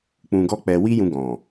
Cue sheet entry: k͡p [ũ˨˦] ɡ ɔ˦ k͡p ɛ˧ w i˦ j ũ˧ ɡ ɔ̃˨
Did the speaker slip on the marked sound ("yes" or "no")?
yes